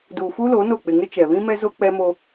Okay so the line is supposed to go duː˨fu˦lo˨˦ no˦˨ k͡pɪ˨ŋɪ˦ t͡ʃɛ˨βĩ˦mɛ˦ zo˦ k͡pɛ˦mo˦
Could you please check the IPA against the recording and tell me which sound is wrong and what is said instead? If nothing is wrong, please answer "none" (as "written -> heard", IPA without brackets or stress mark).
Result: none